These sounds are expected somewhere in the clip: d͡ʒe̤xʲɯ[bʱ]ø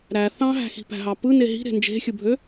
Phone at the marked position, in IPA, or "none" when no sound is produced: bʱ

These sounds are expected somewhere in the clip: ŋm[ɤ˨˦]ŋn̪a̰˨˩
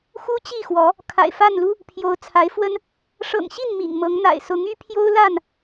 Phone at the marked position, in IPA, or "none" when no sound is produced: ɤ˨˦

